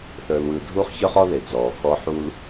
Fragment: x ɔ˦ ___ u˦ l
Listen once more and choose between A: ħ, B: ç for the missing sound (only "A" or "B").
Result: A